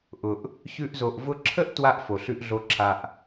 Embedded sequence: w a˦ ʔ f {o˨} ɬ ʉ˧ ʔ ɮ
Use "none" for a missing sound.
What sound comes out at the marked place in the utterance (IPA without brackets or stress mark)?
o˨